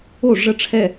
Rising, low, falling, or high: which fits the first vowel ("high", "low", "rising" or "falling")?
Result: falling